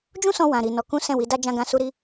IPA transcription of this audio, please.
d͡ʒũ˦sɔ̃˧ wã˨ɾi˨ nɔ˨˦ kũ˦ sɛ̃˦˨wi˨˦da˦ d͡ʒã˦ɡã˦su˦ ɾi˦

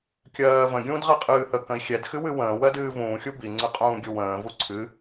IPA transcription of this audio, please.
kʲɜːvə̃ ɡʲũːdʁɛqʼɨːhə kə̃i̯xʲɛd xɨwɨwə̃ː wɜdɨːvũː xʲubi ŋ͡ǀɨqʼũːɡʲuwə̃ː vuǀʰɨ

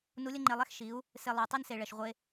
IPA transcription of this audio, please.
nu˧˥lʲə˥ŋ͡ǃe˧lˠɛ˥x ʃi˩˧u̯ | se˧lˠo˩˧ tˤi˥nse˩ ɭɛ˩ʃʁʷe˧

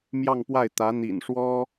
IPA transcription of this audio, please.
mjɑ˥˧ŋ pwa˥˩ɪ̯ t̪ä˧˥n̪ḭ˨˩nʂwɔ˥

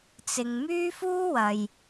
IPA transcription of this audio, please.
t͡sɪ˨ŋmyː˥fuː˥wɐ˨j

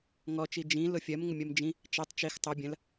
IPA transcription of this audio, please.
ŋɔt͡ʃi d͡ʒĩlʊ fʲɜmŋʊmʲɜm d͡ʒĩ | t͡ʃɜtˤ t͡ʃix tˤʊ bʲɐ̃l

